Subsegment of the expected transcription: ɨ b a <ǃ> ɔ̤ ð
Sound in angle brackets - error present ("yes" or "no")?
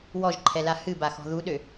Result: yes